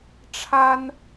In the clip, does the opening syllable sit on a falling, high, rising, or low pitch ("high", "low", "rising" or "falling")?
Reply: high